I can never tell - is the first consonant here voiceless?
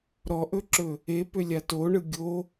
no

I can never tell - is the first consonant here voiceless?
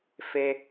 yes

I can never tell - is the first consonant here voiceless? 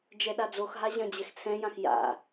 no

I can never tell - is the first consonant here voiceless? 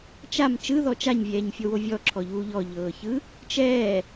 yes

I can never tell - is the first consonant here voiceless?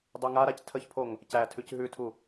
no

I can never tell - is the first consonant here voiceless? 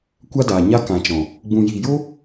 yes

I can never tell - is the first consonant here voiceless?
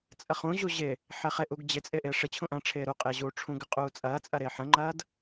yes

